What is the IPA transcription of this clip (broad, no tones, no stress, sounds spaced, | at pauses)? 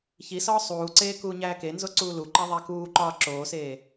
ç i s ɒː sˤ uː ǀ eː k uː ɲ æː k e n z o ǀ uː l u ǃ æ ðˤ æ k uː ǃ ɒː ǁ oː s eː